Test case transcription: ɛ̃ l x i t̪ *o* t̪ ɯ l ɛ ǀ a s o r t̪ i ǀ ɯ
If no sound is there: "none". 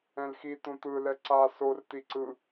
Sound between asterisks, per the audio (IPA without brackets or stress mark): õ